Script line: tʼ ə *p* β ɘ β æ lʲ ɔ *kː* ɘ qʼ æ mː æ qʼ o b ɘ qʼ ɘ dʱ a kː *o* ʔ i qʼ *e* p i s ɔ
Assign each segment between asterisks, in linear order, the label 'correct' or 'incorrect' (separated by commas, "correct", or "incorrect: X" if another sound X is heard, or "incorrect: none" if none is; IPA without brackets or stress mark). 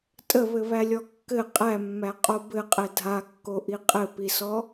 incorrect: none, correct, correct, incorrect: ɘ